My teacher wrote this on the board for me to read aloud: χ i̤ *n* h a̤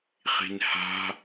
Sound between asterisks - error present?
no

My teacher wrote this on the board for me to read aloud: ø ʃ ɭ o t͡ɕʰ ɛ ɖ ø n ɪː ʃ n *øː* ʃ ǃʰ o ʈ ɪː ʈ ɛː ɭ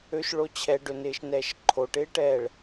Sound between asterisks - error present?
yes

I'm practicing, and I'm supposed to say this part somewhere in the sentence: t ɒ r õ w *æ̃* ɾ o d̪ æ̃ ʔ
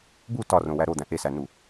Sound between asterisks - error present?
yes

